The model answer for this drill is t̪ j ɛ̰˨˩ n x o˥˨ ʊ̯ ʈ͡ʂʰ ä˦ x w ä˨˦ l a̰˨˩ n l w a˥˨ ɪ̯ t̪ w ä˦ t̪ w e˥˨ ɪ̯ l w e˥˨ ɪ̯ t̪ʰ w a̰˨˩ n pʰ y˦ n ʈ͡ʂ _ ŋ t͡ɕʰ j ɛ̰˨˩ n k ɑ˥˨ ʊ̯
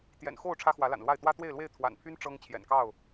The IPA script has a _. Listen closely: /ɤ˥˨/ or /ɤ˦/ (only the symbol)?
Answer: ɤ˦